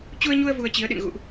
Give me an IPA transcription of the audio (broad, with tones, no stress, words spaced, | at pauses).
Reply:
t͡ɕu˧ə̯ɲu˧ə̯ vu˧ə̯t͡ɕi˨˦ə̯ɗɨ̰˧˨n ɣṵ˧˨ʔ